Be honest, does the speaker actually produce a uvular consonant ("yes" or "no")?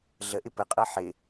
yes